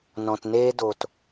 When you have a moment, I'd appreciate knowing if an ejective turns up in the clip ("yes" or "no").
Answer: no